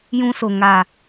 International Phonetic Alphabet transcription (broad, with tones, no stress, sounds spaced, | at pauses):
j ũ˦ s o˨ ŋ a˨